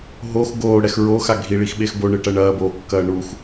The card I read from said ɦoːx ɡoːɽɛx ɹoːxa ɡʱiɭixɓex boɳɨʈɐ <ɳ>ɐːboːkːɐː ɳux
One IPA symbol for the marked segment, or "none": ɳ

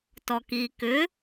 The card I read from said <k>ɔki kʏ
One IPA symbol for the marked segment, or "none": t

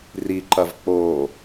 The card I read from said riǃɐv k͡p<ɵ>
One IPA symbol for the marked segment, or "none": o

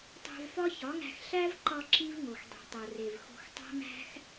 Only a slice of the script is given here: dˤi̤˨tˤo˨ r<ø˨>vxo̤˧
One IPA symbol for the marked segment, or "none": e˨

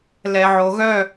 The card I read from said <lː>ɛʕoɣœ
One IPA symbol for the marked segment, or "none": l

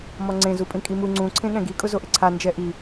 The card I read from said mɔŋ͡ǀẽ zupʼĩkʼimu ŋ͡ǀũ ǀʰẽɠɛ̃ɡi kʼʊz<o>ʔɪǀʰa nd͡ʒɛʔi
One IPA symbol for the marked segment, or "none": o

